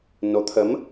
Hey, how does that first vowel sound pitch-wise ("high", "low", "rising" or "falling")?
rising